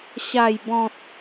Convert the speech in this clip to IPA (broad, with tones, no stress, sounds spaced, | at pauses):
ɕ a˨˩ j b ɔ̃˨ t̚